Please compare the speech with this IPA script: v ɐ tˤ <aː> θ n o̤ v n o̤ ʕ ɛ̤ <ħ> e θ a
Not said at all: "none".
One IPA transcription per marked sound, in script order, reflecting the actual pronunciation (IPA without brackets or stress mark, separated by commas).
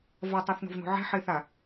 a, ħ